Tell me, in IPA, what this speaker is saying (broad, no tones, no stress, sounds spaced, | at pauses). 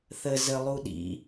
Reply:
θ ə z ə lˠ u ɗ ḭ